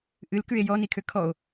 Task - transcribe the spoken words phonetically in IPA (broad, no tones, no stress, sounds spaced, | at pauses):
ʔ ɨ l k ʉ e̯ j ɔ n i kʰ ø kʰ ɔ o̯